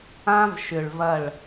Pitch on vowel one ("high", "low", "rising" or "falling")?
high